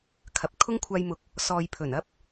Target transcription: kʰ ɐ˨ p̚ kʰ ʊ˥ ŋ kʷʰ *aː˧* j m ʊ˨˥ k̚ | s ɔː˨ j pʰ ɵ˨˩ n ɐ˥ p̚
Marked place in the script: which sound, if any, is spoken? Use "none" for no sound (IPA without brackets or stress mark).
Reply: aː˧